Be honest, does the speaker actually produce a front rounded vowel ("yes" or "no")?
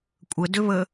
yes